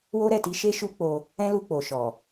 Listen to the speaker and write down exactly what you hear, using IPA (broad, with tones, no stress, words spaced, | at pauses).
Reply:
wo˦ɾɛ˦˨ti˧ʃe˦ ʃu˦k͡po˧ | ɛ̃˦lu˧ k͡po˨ʃɔ˨